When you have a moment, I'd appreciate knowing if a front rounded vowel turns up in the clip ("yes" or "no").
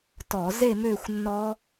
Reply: yes